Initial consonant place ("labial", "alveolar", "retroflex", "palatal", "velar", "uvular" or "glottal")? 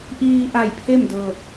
glottal